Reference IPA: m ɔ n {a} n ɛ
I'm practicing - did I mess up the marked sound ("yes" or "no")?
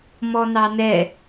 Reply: yes